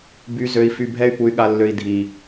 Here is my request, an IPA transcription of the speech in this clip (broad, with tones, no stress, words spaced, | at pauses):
by˧ zø˧i̯fy˧bʱɛ˦y̯ pu˧y̯ɠa˧lːø˧i̯ dʱi˨